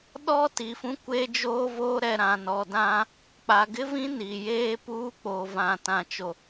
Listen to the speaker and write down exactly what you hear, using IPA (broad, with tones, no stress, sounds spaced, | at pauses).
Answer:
ɗ ɔ˦ t i˨ f ũ˦ kʷ e˦ d͡ʒ oː˦ v oː˦ ɾ ɛ˨ ɾ ã˨ n ɔ˨ d ã˦ | k͡p a˨ ɡ ɪ˦ v ĩ˦ n i˨ j eː˦ p uː˦ k͡p oː˨ v ã˨ t ã˨ t͡ʃ o˨